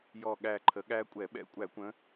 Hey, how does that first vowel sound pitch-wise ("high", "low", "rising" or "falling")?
falling